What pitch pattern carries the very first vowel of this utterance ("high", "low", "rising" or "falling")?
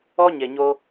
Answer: high